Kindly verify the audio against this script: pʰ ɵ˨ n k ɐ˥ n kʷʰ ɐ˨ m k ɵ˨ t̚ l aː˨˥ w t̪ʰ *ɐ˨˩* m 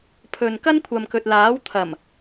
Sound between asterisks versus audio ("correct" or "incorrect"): correct